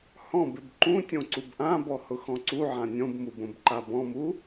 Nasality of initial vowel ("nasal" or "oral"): nasal